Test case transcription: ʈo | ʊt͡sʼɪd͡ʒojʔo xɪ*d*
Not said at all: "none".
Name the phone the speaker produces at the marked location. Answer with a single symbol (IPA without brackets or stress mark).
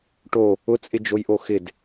d